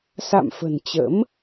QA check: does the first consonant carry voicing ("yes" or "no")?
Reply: no